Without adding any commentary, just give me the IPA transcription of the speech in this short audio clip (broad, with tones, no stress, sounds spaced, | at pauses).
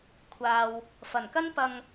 kʷʰ aː˨ w | f ɐ˨˩ n k ɐ˥ n p ɐ˧ ŋ